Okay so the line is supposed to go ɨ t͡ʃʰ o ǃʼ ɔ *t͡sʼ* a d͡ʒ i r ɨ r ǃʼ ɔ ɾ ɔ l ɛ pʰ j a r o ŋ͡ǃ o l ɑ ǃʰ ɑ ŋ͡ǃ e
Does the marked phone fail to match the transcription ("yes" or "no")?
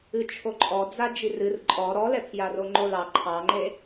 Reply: yes